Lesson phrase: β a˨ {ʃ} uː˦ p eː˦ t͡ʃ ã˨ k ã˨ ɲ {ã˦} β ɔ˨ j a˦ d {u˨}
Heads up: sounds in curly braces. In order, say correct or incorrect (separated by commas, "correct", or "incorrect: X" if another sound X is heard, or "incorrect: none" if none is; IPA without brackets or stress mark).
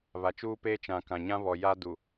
incorrect: t͡ʃ, correct, correct